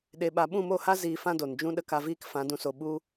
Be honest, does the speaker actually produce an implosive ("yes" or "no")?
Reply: yes